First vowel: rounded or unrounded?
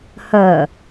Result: rounded